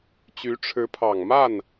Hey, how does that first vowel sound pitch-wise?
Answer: rising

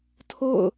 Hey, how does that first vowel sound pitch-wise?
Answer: falling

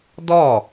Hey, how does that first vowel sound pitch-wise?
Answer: falling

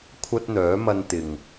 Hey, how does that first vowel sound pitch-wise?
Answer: high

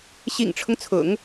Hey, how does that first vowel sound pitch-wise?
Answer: low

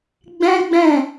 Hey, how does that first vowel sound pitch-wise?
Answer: high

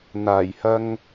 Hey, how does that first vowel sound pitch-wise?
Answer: low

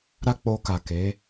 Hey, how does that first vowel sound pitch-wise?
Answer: high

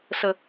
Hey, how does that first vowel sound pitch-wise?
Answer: low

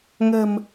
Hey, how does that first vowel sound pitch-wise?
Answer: low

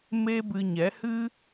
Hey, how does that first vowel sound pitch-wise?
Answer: high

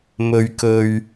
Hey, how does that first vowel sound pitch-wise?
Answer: low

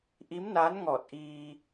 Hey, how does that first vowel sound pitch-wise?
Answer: rising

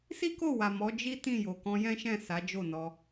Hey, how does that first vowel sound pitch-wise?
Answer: high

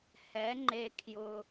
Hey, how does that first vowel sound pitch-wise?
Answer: rising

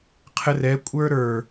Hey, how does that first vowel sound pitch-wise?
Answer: low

